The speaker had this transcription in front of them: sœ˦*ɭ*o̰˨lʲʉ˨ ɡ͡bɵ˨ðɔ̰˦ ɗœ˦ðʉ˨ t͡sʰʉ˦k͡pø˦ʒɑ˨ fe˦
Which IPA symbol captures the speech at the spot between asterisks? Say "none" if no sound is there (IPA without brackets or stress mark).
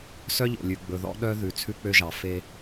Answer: ʎ